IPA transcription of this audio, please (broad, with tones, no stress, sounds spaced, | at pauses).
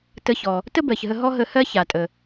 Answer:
t ə˧ ç ɔ˩ | t ə˥ b ɜ˩ ç ɦ ə˧ ɦ ɔ˥ ɦ ə˧ h ɜ˥ ç a˩ tʼ ə˩